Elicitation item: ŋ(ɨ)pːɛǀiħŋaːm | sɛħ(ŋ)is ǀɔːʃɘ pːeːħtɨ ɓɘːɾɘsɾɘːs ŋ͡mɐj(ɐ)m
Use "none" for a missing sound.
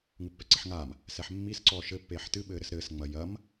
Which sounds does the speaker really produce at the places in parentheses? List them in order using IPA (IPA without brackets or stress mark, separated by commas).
ɨ, mː, ɐ